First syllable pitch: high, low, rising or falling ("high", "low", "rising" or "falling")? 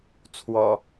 low